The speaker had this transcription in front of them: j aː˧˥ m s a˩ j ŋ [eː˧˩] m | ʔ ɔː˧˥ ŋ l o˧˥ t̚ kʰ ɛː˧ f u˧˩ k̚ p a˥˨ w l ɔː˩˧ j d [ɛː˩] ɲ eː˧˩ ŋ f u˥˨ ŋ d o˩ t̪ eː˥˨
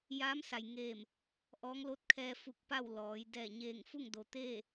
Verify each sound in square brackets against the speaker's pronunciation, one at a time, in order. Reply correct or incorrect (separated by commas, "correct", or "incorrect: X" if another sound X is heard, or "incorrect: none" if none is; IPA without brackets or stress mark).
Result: correct, incorrect: ɛː˧˩